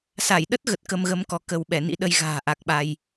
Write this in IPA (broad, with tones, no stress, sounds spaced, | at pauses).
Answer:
s a˧˩ j ɗ ə˦˥ t̚ ɣ ə˨˩ t̚ k ə˧ m ɣ ə˨˦ m k ɔ˧ k ə˧ w ɓ ɛ˧˩ n ḭ˧˥ ɗ ə˧ j ɣ a̤ː˨˩ ʔ a˨˩ k̚ ɓ a˧ j